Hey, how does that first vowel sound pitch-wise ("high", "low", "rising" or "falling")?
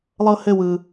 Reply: high